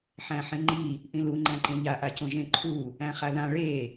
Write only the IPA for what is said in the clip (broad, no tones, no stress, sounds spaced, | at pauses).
ħ æ̃ ħ ẽ ŋ͡ǃ i | ʔ ĩ l u ŋ͡ǃ æ̃ ǃ ẽ ʎ a ʔ a c õ ʒ ẽ ǃʰ u | æ̃ χ a ð ã ɭ e